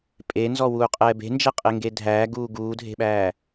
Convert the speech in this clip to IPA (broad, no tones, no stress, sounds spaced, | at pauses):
pʼ e n z ɔ w uː qʼ ɛː b e̤ n d͡ʒ ɛ qʼ e ŋ ɡ e dʱ æː ɡ uː ɡ uː dʱ e̤ ɓ æː